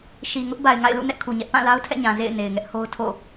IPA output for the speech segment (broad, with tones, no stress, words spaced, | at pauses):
ʃi˨ŋʊ˦ʔ ba˨ɪ̯ŋa̰˦˨ɪ̯lṵ˦˨ nɛ˦ʔkʰu˨ɲɛ˦ʔ pã˦˨la˦ʊ̯tʰɛ̰˦˨ɲã˨ zḛ˦˨ɪ̯ ne˨ɪ̯ŋɛ˦ʔho˦ʊ̯ tʰo̰˦˨